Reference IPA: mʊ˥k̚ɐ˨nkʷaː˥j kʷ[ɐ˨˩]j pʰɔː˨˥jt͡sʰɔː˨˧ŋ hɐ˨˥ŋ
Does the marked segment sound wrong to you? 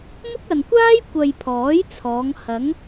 yes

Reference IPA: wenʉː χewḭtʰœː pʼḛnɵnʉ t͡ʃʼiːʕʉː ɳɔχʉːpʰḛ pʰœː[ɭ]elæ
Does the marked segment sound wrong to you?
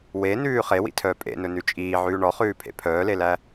yes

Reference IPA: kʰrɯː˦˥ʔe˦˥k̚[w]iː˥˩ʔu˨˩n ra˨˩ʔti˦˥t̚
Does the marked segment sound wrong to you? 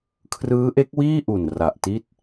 no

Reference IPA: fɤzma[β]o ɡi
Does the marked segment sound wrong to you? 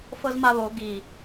no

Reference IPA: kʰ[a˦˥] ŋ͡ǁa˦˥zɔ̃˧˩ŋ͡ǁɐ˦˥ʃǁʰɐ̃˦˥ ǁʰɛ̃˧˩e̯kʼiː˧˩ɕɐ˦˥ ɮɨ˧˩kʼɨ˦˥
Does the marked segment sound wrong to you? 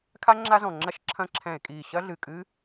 no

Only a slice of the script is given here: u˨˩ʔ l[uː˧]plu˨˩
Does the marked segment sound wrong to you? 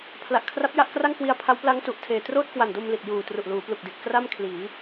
yes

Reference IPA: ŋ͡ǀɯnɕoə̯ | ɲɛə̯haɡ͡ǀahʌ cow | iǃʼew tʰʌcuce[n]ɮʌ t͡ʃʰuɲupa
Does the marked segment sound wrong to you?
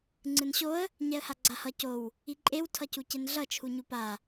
no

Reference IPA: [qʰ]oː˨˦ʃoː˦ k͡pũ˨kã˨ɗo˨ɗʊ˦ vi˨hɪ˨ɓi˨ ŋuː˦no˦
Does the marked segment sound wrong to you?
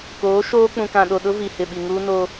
yes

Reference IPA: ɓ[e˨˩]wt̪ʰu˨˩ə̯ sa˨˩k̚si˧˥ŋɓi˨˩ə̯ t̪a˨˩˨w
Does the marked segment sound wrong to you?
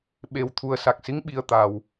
no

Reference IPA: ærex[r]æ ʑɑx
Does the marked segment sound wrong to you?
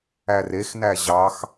yes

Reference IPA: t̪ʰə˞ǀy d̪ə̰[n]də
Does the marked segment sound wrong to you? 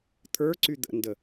no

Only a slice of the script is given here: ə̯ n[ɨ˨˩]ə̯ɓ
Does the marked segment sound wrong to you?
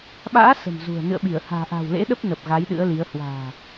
yes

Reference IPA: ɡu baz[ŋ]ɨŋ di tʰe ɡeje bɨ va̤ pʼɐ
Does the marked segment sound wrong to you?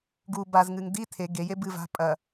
no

